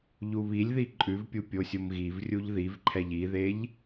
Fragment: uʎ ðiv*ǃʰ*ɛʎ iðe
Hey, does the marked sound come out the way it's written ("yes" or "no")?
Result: yes